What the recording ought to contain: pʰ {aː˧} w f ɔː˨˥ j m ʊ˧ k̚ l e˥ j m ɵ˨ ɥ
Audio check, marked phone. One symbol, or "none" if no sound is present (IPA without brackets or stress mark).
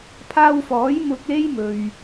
aː˧